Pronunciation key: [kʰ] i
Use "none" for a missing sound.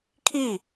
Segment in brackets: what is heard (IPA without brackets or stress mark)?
kʰ